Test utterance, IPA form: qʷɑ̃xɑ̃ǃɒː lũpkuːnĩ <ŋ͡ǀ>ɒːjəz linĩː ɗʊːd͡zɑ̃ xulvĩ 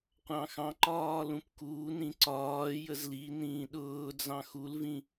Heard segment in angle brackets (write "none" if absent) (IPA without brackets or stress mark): ǀ